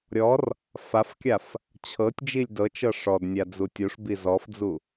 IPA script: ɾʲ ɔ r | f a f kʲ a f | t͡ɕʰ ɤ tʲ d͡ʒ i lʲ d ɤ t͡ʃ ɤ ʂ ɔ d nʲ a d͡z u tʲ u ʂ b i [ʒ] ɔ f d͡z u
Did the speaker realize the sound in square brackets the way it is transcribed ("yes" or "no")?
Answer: no